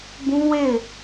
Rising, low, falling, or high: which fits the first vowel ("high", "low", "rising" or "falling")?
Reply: high